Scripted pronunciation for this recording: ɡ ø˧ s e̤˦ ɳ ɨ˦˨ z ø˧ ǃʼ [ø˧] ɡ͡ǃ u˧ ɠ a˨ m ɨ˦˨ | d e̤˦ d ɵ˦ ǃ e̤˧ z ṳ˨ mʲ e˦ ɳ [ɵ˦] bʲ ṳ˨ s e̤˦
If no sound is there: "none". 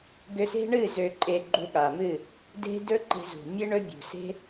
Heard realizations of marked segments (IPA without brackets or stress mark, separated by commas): e˧, ɵ˦